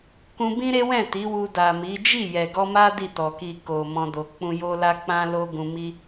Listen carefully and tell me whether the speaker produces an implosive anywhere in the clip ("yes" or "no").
no